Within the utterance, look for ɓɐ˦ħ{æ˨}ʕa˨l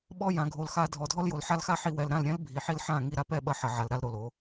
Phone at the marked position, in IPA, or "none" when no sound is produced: ɐ˨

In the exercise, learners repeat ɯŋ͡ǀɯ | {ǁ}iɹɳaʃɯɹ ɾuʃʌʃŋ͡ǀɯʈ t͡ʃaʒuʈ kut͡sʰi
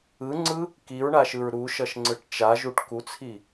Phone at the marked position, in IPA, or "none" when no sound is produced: k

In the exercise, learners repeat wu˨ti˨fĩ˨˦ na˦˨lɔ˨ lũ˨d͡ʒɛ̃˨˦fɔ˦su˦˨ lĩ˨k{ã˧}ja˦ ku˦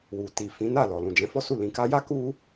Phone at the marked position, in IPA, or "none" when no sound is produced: a˧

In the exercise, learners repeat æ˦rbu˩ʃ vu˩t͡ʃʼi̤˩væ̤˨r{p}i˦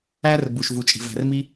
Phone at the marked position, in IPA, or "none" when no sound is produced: m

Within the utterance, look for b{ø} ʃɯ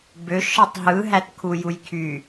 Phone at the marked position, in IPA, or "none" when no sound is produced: ø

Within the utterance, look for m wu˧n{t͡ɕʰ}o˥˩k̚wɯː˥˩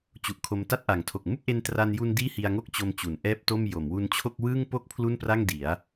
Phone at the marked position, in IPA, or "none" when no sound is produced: t͡ɕʰ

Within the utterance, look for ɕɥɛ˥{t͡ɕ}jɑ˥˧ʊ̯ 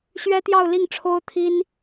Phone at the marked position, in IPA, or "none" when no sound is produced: t̪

